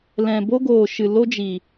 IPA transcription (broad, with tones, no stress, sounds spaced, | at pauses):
l ɛ̃˨ b o˦ ɡ oː˨ ʃ ɨ˨ l o˦ d͡ʒ i˨